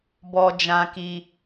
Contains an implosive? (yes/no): no